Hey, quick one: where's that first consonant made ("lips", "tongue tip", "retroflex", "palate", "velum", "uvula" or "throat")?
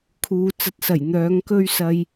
velum